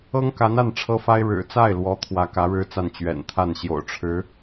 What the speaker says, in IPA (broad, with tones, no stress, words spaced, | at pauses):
ɤ˥ŋka˧˥na˥˩n ʈ͡ʂʰɤ˥fa˥ɪ̯ ɻɻ̩˨˩t͡sa˥˩ɪ̯lwɔ˧˥ t̪ʰwä˧˥ kä˧˥ɻɻ̩˥t͡sa˥˩n t͡ɕɥɛ̰˨˩nt̪ʰa˥˩n ɕjo̰˨˩ʊ̯ʈ͡ʂʰɻ̩˧˥